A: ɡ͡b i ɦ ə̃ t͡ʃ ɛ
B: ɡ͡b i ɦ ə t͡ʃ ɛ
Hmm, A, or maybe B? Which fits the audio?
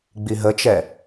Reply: B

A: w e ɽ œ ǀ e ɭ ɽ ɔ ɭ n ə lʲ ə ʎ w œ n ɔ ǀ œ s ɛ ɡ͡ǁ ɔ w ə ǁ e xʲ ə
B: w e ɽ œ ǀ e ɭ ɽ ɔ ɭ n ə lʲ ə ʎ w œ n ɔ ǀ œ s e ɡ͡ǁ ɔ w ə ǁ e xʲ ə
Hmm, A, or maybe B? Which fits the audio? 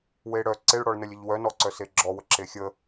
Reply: B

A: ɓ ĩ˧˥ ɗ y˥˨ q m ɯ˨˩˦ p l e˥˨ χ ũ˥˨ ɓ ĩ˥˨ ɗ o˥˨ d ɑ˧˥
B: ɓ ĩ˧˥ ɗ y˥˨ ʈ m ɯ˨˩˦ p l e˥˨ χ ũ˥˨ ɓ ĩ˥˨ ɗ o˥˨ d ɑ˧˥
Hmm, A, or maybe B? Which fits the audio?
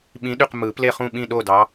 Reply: A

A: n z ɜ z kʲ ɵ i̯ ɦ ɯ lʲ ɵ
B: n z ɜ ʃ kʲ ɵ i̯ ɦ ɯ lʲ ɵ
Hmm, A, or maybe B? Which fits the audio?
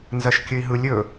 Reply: B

